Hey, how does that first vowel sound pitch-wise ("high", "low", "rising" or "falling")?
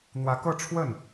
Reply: rising